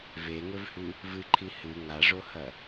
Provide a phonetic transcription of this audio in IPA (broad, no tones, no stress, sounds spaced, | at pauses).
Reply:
v e ŋ ɵ v h ʉ | v ɨ ǃʰ i h ɨ ŋ a ʐ o h ɐ